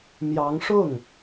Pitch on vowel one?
rising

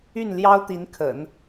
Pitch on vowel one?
falling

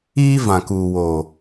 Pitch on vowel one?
high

